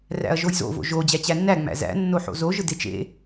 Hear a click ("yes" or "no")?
no